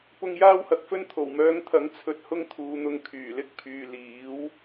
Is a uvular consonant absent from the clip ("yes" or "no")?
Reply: yes